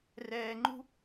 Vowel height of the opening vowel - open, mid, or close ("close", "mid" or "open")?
mid